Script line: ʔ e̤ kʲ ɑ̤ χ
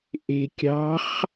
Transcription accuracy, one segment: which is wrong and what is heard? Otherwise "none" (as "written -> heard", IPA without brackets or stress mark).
none